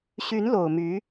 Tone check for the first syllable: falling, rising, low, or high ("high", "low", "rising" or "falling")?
rising